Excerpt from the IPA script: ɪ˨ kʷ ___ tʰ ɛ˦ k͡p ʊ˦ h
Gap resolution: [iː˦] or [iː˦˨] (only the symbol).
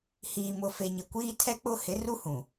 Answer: iː˦